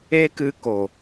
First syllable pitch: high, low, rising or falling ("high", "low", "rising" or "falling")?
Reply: high